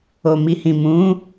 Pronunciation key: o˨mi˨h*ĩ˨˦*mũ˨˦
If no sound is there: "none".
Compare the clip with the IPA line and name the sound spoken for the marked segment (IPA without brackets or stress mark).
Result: ĩ˨